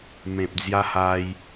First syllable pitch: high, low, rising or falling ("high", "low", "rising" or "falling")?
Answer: low